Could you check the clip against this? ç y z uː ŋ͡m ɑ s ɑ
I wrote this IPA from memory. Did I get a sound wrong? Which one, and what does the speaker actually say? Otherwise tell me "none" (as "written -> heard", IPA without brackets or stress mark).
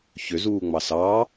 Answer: y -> ø